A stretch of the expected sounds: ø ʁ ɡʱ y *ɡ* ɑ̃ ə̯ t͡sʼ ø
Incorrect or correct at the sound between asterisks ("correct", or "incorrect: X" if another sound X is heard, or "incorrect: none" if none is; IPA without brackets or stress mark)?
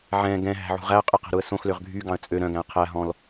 correct